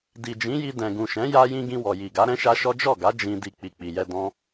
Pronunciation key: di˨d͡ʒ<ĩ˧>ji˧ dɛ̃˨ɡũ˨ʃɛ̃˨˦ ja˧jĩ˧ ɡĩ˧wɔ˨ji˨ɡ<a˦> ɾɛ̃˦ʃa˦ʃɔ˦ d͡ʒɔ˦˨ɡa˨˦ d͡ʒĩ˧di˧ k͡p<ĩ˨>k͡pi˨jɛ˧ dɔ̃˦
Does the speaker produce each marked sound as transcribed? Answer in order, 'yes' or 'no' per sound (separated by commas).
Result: no, no, no